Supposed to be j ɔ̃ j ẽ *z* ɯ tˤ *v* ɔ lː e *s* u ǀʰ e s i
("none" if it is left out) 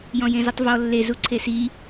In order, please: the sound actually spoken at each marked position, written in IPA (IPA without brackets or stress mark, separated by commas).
z, v, z